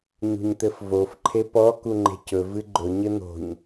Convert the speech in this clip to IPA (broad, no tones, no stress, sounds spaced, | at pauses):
ɲ ṳ ɲ t̪ ɘ f v o f ǃʰ e p ɔ k u ŋ͡ǃ e̤ c ɵ v ɨ ɡ͡ǃ ɵ ɲ ɘ n̪ o̤ ɲ